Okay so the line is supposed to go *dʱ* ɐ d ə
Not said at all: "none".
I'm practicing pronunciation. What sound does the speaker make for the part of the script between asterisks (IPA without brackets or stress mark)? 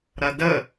ɾ